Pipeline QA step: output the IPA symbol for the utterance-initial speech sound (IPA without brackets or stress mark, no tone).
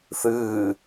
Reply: θ